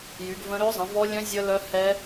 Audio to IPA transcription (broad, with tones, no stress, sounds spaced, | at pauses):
j y˩˧ ɡ v ə̃˦˥ ɾ ø˦˥ zˤ ə̃˩˧ v ɔ˦˥ lʲ œ̃˦˥ zʲ ə˦˥ l œ˦˥ h ɛ˦˥